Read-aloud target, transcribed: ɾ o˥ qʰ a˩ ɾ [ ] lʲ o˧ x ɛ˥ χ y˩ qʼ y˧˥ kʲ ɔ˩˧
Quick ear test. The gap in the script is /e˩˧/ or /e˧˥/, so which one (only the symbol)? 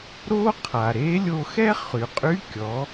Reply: e˧˥